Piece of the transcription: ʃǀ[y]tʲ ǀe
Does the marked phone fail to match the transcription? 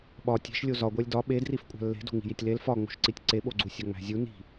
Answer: yes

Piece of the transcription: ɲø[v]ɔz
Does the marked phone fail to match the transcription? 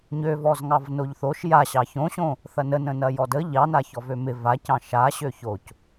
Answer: no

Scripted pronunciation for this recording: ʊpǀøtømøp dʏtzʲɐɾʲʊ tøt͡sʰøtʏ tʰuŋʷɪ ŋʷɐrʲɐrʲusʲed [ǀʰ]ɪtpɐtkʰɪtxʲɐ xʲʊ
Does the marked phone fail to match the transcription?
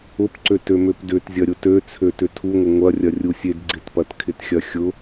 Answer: yes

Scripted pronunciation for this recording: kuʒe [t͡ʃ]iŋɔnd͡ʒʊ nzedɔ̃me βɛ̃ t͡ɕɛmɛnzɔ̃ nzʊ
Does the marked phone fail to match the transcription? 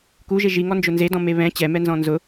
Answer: yes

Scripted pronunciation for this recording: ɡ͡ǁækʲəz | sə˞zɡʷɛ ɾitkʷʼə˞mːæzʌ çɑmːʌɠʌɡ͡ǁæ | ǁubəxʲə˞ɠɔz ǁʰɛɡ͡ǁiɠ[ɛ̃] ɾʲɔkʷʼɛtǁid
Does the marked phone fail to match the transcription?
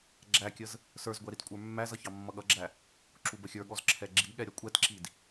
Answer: yes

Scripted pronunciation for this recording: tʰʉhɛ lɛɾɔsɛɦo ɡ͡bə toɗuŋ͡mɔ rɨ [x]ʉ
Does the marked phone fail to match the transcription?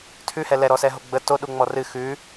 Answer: no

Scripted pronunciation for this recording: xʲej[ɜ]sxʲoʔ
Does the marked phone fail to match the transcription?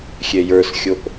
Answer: yes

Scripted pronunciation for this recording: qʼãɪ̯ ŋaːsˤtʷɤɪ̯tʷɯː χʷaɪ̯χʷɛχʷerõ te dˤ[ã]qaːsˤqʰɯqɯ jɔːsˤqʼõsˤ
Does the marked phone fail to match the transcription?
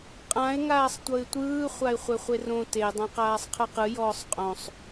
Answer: no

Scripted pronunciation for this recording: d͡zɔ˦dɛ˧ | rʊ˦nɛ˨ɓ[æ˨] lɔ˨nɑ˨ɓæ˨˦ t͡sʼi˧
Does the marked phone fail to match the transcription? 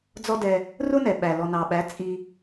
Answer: no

